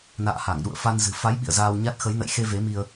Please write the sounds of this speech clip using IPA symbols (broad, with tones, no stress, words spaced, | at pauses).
na̰ː˧˨ha˧˩ŋɗṵ˧˨ə̯ fa˧nzɨ̤˨˩ fa˨˦j ɓḭ˧˨ə̯zaː˧wɲa˦˥t̚ xə˨˦jnə̰˧˨jxe˧ ve˨˦mi˧ə̯